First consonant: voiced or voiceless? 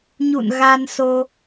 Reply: voiced